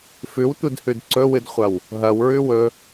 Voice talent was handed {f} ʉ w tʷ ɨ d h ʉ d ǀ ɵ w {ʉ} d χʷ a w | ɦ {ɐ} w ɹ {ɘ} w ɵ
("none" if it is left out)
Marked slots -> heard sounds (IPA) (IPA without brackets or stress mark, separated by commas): f, ɨ, ɐ, ʉ